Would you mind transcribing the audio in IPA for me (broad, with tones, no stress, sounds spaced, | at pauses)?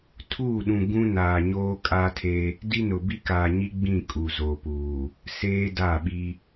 tʰ uː˦˨ ɗ ũ˨ ɡ ũ˦ n aː˨ ɲ oː˦ kʼ a˦ tʰ e˦ | d i˦ n ʊ˨ b i˦ k aː˨ ɲ i˦ ɡ͡b ĩ˦˨ kʼ u˨ z o˨ p uː˨ | s eː˦ d a˦˨ ɓ i˦